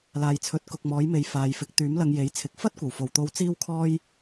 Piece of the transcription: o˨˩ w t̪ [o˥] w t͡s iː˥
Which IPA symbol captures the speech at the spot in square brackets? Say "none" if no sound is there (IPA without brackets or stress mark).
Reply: o˨˧